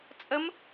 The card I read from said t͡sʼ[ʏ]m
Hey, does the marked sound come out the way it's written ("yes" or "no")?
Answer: no